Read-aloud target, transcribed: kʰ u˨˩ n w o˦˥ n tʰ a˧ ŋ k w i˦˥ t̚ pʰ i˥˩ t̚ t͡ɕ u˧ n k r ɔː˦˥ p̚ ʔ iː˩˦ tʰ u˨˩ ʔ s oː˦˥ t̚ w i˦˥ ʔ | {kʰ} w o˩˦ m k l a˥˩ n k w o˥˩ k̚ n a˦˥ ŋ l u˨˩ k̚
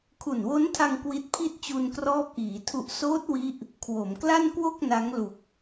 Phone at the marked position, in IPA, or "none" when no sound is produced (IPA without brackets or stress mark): kʰ